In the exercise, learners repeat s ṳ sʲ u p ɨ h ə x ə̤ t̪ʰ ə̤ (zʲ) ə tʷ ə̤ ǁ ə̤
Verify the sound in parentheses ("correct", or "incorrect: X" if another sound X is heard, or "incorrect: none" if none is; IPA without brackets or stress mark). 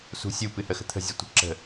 correct